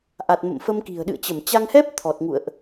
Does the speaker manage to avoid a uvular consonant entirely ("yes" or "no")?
yes